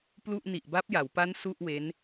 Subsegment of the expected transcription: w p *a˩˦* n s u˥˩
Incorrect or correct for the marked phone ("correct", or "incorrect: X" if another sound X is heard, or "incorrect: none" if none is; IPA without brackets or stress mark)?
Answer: incorrect: a˦˥